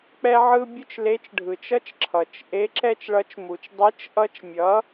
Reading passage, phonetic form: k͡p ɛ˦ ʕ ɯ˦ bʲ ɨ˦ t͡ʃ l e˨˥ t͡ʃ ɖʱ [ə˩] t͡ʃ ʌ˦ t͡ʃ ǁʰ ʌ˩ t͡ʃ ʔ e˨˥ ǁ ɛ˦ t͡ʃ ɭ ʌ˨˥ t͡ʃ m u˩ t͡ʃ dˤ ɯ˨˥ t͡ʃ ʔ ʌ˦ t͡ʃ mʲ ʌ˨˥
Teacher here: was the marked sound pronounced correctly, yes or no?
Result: no